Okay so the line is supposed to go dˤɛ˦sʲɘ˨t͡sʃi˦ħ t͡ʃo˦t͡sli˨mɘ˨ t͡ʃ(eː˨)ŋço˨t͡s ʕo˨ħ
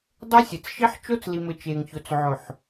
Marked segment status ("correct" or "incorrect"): correct